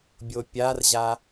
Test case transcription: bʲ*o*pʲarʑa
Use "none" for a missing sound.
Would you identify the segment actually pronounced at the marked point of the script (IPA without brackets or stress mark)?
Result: o